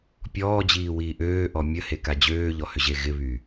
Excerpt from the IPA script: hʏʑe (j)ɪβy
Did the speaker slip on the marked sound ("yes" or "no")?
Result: yes